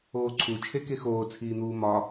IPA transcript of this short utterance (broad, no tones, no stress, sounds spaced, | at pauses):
oː ǀʰ u t͡ʃʰ e k e x oː t͡sʰ iː n̪ uː m ɒ